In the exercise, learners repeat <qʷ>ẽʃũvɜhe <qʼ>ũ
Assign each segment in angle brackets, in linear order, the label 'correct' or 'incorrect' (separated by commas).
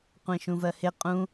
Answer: correct, correct